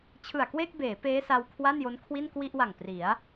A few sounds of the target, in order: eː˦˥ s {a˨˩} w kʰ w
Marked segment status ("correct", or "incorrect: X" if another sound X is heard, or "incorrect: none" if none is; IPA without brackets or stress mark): incorrect: a˧